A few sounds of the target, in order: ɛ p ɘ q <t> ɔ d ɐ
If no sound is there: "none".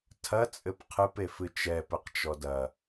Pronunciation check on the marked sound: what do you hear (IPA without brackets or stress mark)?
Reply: t͡ʃ